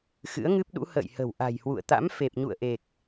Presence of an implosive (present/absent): present